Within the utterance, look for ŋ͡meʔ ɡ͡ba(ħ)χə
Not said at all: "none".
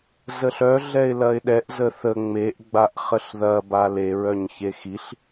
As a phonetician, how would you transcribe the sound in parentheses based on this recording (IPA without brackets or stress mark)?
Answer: ʔ